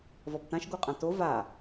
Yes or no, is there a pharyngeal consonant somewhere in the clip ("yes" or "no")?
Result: no